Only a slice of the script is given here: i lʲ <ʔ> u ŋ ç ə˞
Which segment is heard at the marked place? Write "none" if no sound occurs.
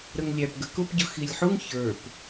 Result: ħ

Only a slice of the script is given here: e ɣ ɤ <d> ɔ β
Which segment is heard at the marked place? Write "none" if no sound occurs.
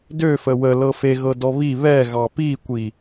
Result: d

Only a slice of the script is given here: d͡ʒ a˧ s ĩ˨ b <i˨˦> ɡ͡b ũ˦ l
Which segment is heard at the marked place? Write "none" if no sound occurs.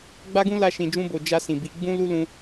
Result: i˨˦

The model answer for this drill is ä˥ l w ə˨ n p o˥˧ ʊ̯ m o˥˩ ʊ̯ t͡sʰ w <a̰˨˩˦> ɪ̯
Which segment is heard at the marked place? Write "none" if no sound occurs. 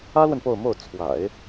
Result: a̰˨˩˦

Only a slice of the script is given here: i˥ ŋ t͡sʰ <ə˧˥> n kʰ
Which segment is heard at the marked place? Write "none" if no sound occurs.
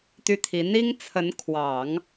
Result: ə˧˥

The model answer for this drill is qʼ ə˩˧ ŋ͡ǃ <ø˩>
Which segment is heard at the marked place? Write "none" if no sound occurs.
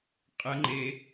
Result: e˩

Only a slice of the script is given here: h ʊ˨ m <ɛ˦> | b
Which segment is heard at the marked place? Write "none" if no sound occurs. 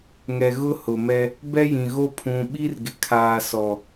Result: ɛ˦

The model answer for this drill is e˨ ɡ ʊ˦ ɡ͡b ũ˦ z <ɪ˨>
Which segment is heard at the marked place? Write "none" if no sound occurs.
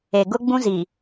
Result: i˨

